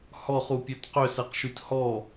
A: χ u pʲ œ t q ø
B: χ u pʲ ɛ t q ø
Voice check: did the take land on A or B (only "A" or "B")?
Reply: A